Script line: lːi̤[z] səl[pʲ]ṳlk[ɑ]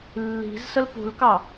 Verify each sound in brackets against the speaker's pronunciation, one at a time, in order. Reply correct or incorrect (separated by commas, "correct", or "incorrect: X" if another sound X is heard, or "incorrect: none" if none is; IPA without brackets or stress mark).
correct, incorrect: p, correct